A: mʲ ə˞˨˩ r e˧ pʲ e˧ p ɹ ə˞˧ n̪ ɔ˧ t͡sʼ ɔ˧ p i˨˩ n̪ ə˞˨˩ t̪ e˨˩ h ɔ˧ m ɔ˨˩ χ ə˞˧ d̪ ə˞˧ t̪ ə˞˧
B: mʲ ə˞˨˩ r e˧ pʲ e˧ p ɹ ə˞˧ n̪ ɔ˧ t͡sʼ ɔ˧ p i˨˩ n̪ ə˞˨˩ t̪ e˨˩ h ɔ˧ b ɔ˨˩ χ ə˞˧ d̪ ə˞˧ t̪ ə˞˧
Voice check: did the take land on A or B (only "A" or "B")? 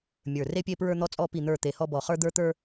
B